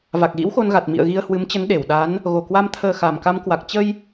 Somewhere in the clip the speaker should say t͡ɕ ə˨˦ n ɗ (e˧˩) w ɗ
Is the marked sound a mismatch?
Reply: no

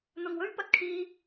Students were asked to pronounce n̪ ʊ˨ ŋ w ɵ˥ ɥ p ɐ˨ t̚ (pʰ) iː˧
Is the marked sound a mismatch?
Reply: yes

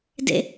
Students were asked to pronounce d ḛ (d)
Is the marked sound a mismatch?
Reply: yes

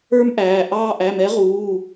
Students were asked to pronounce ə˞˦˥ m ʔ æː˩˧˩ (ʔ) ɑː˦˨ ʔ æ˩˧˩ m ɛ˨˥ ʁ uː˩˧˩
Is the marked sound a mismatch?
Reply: no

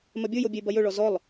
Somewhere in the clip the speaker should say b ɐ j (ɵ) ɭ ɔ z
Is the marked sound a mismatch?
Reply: no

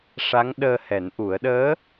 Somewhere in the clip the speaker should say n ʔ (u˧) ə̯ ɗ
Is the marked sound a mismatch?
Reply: yes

